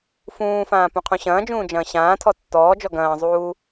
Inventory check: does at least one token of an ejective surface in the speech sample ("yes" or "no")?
no